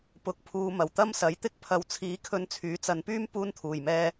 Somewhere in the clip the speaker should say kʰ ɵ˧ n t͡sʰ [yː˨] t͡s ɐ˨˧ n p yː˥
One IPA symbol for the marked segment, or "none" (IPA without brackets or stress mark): yː˨˥